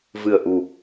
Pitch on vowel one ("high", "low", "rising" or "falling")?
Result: low